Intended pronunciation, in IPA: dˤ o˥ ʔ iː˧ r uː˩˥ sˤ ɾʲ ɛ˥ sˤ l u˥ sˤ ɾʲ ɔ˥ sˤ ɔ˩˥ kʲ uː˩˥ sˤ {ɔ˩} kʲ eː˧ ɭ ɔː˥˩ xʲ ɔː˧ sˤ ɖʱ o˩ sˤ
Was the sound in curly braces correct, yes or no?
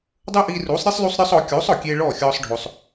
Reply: yes